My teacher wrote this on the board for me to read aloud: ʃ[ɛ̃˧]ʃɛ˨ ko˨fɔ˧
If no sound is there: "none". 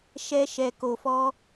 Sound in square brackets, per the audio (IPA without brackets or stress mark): ɛ˧